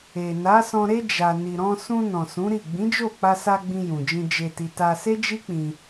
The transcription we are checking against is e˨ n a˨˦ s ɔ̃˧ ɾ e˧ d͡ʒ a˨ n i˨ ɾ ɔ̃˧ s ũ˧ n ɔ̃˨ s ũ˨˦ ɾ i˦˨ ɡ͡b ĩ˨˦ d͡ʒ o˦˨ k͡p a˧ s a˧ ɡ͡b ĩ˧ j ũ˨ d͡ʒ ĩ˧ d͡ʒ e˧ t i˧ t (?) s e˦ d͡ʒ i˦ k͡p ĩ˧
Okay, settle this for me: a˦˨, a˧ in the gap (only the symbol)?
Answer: a˧